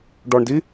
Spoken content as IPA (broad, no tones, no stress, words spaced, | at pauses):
ɖɔɳdi